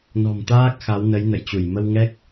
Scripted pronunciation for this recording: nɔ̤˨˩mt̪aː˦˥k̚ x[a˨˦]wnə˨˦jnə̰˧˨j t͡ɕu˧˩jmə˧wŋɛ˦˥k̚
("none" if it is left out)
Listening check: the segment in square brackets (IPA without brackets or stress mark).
a˨˦